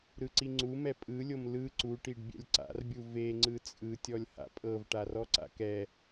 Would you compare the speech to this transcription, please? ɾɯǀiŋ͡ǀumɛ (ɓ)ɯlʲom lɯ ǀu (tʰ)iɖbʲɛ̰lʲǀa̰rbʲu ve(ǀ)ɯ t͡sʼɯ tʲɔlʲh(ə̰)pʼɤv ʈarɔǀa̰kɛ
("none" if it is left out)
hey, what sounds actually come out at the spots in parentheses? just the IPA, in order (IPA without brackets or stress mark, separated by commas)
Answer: pʼ, ʈ, ŋ͡ǀ, a̰